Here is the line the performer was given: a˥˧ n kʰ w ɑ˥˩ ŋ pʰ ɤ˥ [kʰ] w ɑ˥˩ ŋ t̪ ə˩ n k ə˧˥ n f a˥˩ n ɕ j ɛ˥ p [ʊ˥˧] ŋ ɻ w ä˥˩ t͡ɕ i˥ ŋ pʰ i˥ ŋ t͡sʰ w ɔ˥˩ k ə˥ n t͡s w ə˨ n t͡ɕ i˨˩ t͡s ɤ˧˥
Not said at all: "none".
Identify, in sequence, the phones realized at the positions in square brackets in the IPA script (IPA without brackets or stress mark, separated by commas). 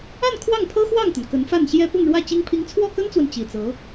x, ʊ˥˧